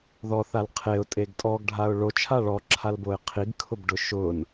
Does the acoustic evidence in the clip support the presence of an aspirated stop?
yes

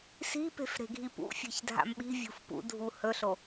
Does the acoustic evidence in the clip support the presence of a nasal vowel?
no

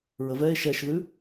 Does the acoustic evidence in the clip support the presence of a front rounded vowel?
no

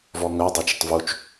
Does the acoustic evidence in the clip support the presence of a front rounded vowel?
yes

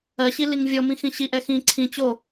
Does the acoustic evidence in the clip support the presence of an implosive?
no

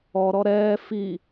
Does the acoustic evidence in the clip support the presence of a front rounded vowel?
no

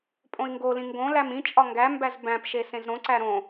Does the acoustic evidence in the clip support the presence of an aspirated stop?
no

